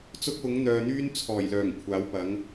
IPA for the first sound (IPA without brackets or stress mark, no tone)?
t͡s